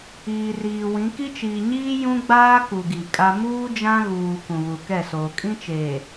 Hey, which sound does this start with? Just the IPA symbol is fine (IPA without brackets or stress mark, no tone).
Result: iː